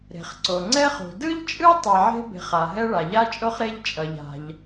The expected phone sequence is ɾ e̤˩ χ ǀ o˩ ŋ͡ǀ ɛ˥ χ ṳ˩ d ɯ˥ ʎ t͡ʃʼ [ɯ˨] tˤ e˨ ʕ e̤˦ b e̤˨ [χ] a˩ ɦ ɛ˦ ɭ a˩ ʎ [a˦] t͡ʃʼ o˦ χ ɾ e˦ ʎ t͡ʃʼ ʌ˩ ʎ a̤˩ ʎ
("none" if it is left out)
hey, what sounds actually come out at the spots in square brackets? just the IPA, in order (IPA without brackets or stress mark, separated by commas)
ɯ˥, χ, a˦